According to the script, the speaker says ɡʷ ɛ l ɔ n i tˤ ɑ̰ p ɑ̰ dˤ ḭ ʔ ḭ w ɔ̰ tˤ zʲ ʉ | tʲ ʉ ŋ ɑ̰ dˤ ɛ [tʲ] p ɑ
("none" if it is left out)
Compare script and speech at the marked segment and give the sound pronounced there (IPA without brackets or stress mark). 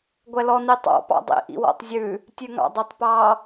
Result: tˤ